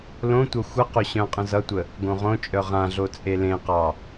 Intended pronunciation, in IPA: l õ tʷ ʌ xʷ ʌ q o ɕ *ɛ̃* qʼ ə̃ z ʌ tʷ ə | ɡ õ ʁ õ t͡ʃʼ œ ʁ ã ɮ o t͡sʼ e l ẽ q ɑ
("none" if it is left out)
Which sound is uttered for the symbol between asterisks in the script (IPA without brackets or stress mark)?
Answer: œ̃